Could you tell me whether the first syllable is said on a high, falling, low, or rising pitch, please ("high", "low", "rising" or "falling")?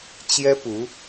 high